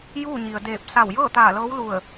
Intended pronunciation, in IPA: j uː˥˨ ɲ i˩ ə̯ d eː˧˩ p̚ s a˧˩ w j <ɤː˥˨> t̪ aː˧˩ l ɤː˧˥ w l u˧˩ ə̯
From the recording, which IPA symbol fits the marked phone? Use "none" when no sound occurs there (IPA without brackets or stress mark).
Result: ɤː˥˨